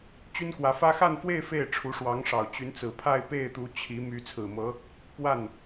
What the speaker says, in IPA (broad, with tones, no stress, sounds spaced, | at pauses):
t͡ɕ y˥ n k w ä˧˥ f ä˥ x a˥˧ n f w e˥˧ ɪ̯ f e˥˩ ɪ̯ ʈ͡ʂʰ u˧˥ ʂ w ɑ˧˥ ŋ ʂ ɑ˨˩ ʊ̯ t͡ɕ y˧˥ n t͡s ɹ̩˨˩ pʰ a˥˧ ɪ̯ p e˥˩ ɪ̯ t̪ u˧˥ t͡ɕʰ i˧˥ m y˧˥ t͡sʰ ɹ̩˨˩ m ɤ˧˥ | p w a˥˩ n